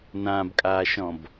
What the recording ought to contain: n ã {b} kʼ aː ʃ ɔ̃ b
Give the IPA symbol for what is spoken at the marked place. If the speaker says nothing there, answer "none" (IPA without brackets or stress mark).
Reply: b